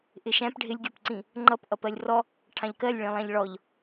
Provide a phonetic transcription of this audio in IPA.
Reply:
ʔ ɪ ʃ æ̃ p ɖʱ ɪ lʲ ɡʲ ɔ p ǀ ĩ | ŋ͡ǃ ʌ p ʔ ʌ p ɜ lʲ r ɔ | ʈʰ ɑ̃ ʎ k ɜ lʲ ɭ ĩ lˠ æ̃ ʎ ɭ ɔ ʎ

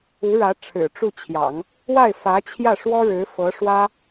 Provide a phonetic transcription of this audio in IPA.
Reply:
u˧˥ ɻ ä˧˥ ʈ͡ʂʰ ɻ̩˨˩ ʈ͡ʂ u˥˩ t͡ɕʰ j ɑ̰˨˩˦ ŋ | w a˥˩ ɪ̯ f ä˧˥ t͡ɕʰ j ä˥˩ ʂ w ɔ˥ ɻ ɻ̩˧˥ f ɤ˧˥ ʂ w ä˥

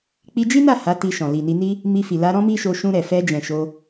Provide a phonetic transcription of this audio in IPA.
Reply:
k͡p i˧ d͡ʒ i˦ n a˦˨ h a˨˦ t i˧ ʃ ɔ̃˨ l i˨ n i˧ n i˦ | m i˧ f i˨ l a˧ ɾ ɔ̃˦ m i˦ ʃ o˧ ʃ ũ˧ ɾ ɛ˨ f ɛ˧ d͡ʒ ɛ̃˨ ʃ o˧

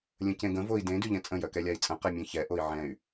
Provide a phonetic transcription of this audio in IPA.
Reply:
lʲ ə̃ c ẽ ɡ ə̃ v o i̯ d ẽ d y ʎ ɛ̃ t͡sʼ ə̃ j œ k ɛ lʲ a i̯ t͡sʼ ə̃ q ɛ mʲ ɛ̃ ç ɛ ʔ o i̯ ʕ ɛ̃ y̯

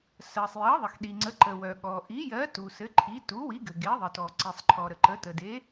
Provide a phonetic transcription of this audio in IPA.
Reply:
s ɜ˩ sˤ j ɜ˩˥ ðˤ ə˩ x ɗ i˩ ŋ͡ǀ ə˩˥ ǃ ə˩ w œ˩ ɠ ɔ˩ ʔ i˩˥ j ɜ˩˥ t u˩ s ɘ˩˥ ǃʰ i˩˥ t u˩˥ w i˩˥ ɡ ɘ˩ ɡ e˩˥ ðˤ ə˩ t ɔ˩ ǀ i˩ sˤ ǃʰ ɔ˩ ɾ ə˩ ǃ ə˩˥ t ə˩ d e˩˥

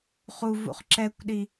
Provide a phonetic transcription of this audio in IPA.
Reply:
χ u v ṵ χ ǁ ɛ kʷ ɗ i

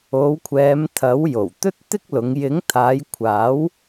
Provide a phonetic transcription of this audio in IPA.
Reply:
o˨˧ w kʷʰ ɛː˨˧ m t̪ʰ ɐ˨˥ w j o˨˩ w t̪ ɵ˥ t̚ t̪ ɪ˥ k̚ l ʊ˨˧ ŋ j ɪ˨˥ ŋ t̪ʰ aː˨˧ j kʷʰ aː˨˥ w

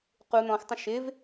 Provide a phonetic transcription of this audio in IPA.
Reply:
q u n̪ ɔ̃ x tˤ ə̃ ʃ ɪ v

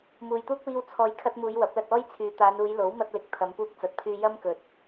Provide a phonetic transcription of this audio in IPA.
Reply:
m uː˨ j t̪ uː˥ k̚ w iː˧ w t͡sʰ ɔː˨ j kʰ ɐ˧ t̚ m uː˨˧ j w ɐ˨˥ p̚ l ɐ˧ t̚ ɔː˥ j t͡sʰ yː˨˧ t̪ aː˨˧ n uː˨˧ j l o˨˥ w m ɐ˧ t̚ l ɪ˨ k̚ t̪ʰ ɐ˨˧ m p uː˧ k̚ t͡s ɐ˨ t̚ pʰ yː˧ j ɐ˥ m k ɵ˨ t̚

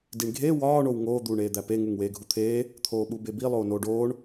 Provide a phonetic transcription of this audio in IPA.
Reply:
d i ɳ ɡʱ e w ɒː ɳ o w ŋ oː d̪ uː ɳ eː d̪ æ p e ŋ u ŋ w eː ɡʱ u t̪ʰ eː | t̪ʰ oː ɓ u b e b i lˠ oː n oː ɖ oː ɳ

